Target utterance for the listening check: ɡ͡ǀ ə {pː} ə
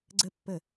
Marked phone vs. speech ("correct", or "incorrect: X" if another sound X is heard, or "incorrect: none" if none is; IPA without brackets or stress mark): correct